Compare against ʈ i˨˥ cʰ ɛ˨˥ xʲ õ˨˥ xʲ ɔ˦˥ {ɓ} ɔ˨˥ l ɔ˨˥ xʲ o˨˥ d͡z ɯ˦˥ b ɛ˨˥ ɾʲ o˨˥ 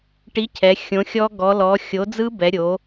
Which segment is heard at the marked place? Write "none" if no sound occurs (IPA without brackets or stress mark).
ɡ